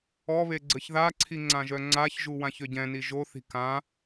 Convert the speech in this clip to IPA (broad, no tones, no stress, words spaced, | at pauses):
ɔβe ɡ͡ǀəçðaǀʰi ŋ͡ǀãʒœŋ͡ǀaçʒu wãçøɟɛ̃ni ʒoθi̤ kã